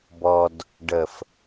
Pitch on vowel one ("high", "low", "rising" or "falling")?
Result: low